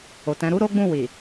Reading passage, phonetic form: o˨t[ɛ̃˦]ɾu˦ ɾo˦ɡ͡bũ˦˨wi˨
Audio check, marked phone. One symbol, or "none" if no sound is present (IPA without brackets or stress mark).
ɛ̃˨˦